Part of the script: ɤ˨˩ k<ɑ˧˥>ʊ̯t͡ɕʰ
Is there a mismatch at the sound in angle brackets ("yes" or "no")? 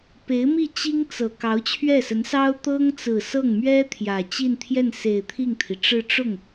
no